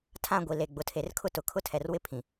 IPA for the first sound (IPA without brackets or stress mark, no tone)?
tʰ